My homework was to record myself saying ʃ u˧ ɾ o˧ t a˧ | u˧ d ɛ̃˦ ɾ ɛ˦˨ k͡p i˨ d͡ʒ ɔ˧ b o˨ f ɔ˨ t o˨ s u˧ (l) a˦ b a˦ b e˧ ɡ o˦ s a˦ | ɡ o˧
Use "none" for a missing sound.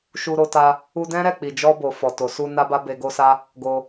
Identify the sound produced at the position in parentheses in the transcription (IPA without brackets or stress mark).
n